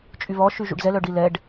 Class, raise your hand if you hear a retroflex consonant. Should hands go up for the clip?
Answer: yes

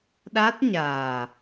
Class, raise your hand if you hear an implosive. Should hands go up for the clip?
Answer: yes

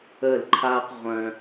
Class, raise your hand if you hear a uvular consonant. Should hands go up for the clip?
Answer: yes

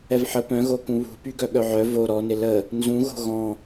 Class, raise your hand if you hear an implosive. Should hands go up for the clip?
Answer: yes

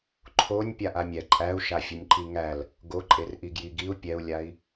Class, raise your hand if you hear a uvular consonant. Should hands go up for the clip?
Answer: no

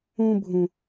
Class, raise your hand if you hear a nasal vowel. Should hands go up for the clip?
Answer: yes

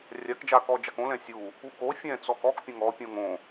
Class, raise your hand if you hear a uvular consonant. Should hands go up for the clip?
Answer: no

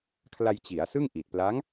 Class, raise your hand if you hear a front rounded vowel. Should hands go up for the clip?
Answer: no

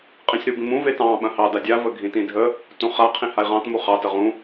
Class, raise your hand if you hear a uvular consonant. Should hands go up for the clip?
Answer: yes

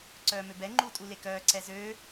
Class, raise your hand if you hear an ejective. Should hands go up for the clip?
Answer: yes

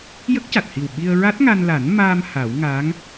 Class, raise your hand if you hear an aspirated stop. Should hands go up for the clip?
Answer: no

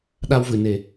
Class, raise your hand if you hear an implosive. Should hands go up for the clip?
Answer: yes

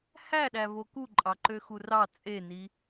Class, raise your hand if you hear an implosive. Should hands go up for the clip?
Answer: yes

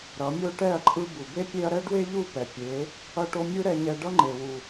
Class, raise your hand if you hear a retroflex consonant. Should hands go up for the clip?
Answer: yes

